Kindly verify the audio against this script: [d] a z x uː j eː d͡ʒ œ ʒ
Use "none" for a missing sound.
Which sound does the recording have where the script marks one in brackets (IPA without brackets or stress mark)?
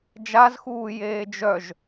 d͡ʒ